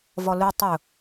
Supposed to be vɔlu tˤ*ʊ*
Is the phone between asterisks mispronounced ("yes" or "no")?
no